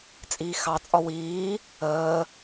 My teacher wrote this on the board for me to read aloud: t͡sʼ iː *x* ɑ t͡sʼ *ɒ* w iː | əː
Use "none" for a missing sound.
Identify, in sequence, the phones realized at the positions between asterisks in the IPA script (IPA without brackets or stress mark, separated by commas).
x, ɒ